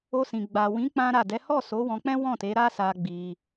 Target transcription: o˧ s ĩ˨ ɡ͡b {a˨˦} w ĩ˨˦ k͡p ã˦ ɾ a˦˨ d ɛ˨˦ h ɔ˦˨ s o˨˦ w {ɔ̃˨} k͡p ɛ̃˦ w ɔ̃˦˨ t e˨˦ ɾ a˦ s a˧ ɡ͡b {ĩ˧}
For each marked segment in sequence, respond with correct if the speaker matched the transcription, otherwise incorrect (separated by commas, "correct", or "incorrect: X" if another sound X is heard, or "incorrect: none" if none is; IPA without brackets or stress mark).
incorrect: a˨, incorrect: ɔ̃˧, incorrect: i˧